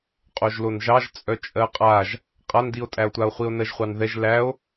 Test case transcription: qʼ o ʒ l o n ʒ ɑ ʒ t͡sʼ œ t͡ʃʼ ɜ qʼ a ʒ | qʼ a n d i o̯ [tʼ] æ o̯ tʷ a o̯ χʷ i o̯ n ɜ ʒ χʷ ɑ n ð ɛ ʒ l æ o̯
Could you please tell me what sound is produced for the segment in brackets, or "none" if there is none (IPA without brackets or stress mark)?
tʼ